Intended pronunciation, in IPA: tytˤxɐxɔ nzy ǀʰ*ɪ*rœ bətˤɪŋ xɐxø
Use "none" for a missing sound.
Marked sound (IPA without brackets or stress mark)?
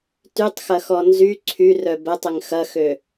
y